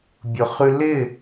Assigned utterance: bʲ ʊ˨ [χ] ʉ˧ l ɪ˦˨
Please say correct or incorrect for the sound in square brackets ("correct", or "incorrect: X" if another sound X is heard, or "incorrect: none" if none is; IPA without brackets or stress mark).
correct